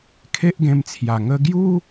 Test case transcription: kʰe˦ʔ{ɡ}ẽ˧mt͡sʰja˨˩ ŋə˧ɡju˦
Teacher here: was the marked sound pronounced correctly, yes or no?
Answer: yes